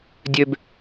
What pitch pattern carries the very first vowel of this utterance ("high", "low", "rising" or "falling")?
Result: low